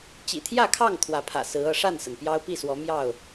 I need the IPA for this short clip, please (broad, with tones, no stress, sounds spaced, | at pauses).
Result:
t͡ɕ ḭ˨˩ t̪ʰ j ä˥˨ kʰ ɑ˥˨ ŋ t̪ʰ w ä˨˦ pʰ ä̰˨˩ s ɹ̩˨˦ ɤ˥˨ ʂ a˥˨ n s ə˩ n p j ɑ˦ ʊ̯ p i˥˨ s w ɔ˨˦ m j ɑ˥˨ ʊ̯